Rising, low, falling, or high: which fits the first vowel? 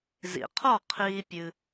low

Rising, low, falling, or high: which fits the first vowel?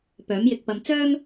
rising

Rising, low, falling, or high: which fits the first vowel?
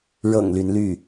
low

